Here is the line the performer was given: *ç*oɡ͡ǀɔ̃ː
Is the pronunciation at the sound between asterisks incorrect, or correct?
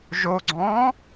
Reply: incorrect